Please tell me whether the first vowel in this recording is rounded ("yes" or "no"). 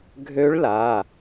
yes